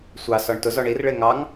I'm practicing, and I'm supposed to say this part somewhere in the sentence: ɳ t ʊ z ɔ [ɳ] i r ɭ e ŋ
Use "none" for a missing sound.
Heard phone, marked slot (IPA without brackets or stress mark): ɳ